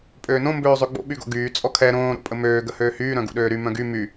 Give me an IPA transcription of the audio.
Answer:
pʼ øː n õ m b øː zˤ ø ɡ͡b o̰ ɓ y ɡ o̰ ɡ yː t͡sʼ ɔ kʰ ɛ ɾ õː ɾ o̰ pʼ ə m øː ɡ ə h øː h yː ɾ œ̃ ɡ ṵ ɗ øː ɾ y m œ̃ ɡ y m y

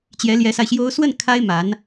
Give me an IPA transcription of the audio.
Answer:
t͡ɕ j ɛ˧˥ l j ɛ˧˥ s a˧ ɪ̯ ɕ j o˥ ʊ̯ s w ə˥˩ n kʰ a˥ ɪ̯ m a˧˥ n

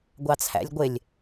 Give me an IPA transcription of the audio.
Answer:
ɡʷ ɑ t͡sʰ æ̰ lʲ ɡʷ ɪ lʲ

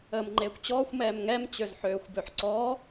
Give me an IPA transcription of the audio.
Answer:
əː m ŋ͡ǃ eː kʷ t͡ɕ ɔː xʷ m ɛː m ŋ ɛ m t͡ɕ ø z ħ øː xʷ b ø ħ ǀ ɔː

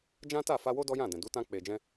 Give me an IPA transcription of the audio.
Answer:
d͡ʒ ã˦ t a˦˨ f a˧ w o˦ d ɔ˦ j ã˦˨ d ɛ̃˨ d u˨˦ t ã˧ k͡p e˨ d͡ʒ ɛ̃˧

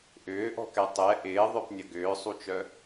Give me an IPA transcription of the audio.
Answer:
ʔ ʏː ʔ ɔ̤ k ɛ tˤ ɛ ʔ ɪː ðˤ œ p nʲ ɐ ɡ ʏː sˤ u t͡ʃ œ

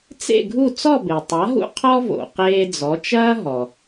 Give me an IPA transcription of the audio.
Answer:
t͡s ḛ˥˩ ɡʱ u˥˩ t͡s ɔ˥˩ b e˩ tˤ a˩˥ ɦ ṵ˥ qʰ ɔ˥ v o̰˩ q eː˧ d͡z ɔ˩˥ t͡ʃ ɐː˥ ɦ ɔ˩

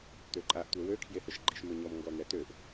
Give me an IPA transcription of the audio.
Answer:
t̪ ø ǃʼ a ʔ tʷ ɛ w ø kʰ j e h ə ʃ ɡ͡ǃ i ʃ m ø ɲ ɔ m ŋ ɡ ɔ n̪ ɛ t̪ ø ʔ

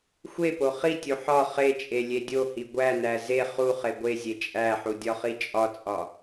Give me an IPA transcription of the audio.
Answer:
xʷ e p o χ i tʲ u ħ ɒ χ e t͡ʃʼ e lʲ e dʲ o h i ɡʷ æ n æ z e χ u χ e ɡʷ e zʲ e t͡ʃʼ æ ħ u dʲ ɒ χ i t͡ʃʼ ɒ t͡sʼ ɒ

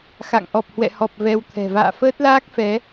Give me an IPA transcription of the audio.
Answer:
x a̰˧˨ ŋ ʔ ɔ˨˩ p̚ h w ɛ̰˧˨ h ɔ˨˩ p̚ v ɛ˧ w t̪ʰ ɛ̤˨˩ v a̰ː˧˨ f əː˦˥ t̚ l aː˦˥ k̚ f ɛ˨˦

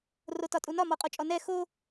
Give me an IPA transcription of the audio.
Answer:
r o t ɒ tʼ u n ɒ m ɔ qʼ o t͡ʃʼ ɔ n ɛ x o

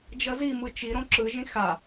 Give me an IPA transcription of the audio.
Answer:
d͡ʒ ʌ z i m ɯ t͡ʃ i ɾ õ ǁ ɯ ʒ ĩ x a

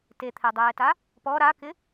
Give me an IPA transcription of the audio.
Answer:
t e t̪ʰ ɛ dˤ ɛː t a | p ɔ ɾ a k ɪ

